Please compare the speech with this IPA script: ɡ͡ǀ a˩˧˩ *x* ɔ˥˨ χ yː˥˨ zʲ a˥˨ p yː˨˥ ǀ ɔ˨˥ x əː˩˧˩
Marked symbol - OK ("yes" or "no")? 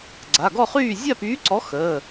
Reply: no